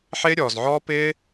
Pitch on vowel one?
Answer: high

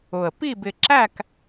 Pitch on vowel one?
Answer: low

